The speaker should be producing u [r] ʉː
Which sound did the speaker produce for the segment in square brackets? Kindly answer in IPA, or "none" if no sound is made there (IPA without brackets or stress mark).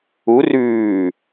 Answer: r